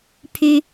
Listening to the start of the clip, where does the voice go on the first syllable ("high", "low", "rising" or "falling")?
high